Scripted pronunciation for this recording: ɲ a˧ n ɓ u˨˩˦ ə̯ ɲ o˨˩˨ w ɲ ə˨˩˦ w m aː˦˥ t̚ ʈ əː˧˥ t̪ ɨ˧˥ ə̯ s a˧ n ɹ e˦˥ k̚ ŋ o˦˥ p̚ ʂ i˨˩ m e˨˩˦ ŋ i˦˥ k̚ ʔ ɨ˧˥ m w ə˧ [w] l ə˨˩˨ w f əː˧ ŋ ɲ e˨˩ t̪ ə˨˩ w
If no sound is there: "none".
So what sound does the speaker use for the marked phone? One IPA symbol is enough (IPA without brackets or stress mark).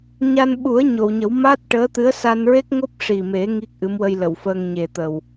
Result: j